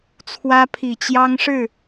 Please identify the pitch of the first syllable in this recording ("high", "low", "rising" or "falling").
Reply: high